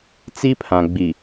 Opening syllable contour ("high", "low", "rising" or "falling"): high